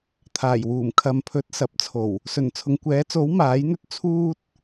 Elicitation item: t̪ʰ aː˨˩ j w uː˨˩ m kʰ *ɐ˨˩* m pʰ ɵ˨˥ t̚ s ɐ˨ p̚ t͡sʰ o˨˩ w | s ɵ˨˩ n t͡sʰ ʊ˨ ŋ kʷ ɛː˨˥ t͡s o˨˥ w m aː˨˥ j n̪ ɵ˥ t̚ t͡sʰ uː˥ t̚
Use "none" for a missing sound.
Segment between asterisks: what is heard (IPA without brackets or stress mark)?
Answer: ɐ˨˧